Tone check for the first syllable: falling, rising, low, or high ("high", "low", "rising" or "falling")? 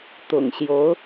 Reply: low